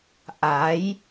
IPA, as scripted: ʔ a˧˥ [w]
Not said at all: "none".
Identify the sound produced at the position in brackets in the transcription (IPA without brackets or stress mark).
j